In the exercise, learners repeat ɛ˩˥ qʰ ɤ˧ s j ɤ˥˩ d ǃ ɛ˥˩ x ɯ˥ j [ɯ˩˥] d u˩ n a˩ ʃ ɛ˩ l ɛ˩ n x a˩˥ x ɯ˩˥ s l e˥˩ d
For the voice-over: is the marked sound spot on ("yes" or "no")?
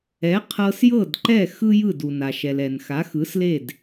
no